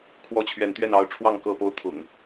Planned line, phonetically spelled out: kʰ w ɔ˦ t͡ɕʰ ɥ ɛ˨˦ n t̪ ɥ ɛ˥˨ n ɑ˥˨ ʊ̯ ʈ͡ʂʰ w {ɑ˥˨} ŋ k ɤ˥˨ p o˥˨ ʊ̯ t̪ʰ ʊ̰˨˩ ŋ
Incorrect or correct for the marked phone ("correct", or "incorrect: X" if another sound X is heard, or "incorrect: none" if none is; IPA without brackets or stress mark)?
correct